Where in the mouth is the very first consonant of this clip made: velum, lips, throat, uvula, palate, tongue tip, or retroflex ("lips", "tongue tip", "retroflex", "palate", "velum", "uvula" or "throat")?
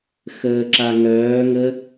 velum